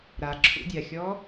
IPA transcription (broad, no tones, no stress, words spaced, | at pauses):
ɾaǁʰṵdʲaxʲɔ